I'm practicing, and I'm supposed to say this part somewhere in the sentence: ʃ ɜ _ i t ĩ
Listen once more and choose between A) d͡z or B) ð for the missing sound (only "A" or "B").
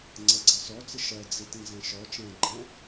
A